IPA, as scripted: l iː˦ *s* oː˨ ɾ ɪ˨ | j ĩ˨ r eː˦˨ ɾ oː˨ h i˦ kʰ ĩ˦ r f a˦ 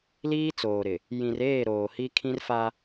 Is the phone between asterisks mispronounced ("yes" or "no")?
yes